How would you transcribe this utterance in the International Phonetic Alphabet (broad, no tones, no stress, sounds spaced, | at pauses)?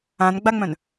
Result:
ã n ɡ͡b a ŋ͡m œ̃ n